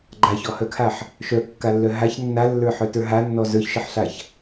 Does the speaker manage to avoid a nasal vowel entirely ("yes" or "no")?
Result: yes